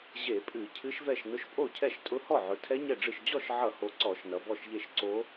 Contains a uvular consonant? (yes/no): no